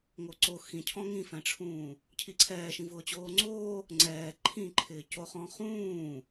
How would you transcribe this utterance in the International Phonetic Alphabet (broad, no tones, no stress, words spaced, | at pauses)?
ŋoǀo xĩcʰɔ̃ ŋĩfɛ̃ʈ͡ʂʰũː | cʰiǀʰɛːʃĩ vʊːt͡ɕoːŋ͡ǀoː | ŋ͡ǀɛː ǃʰĩǃʰɪː coχɔ̃ χũː